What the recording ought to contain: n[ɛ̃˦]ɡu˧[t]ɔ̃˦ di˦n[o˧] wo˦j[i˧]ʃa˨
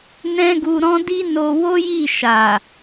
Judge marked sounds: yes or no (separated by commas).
yes, no, yes, no